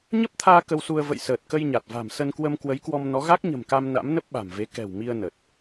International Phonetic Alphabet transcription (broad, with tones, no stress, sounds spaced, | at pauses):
ɲ ə˦˥ p̚ t̪ʰ aː˧ k ə˧ w s u˧ ə̯ v ə̰˧˨ j s əː˨˩ t̚ k ə˧ j ɲ a˨˩ t̚ v a̤˨˩ m s ə˧ n k w ə˧ m k w ə˨˦ j k w ɔ˧ m n ɔ˨˦ ɣ a˦˥ k̚ ɲ ə̤˨˩ m k a˧ m n a̰˧˥ m n ə˦˥ p̚ ɓ a̤˨˩ m v e˨˦ k ɛ̤˨˩ w m i˧ ə̯ n ə˨˩ t̚